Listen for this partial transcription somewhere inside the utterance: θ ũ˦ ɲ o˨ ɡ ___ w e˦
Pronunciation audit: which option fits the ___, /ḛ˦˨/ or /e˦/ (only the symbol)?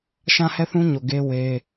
e˦